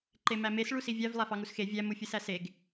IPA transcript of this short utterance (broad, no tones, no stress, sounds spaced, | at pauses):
ǃ e m æ m e s ɭ u s i vʲ æ v lˠ æ f ɑ ŋ u s x e vʲ æ m u fʲ ɯ s æ s e ɡ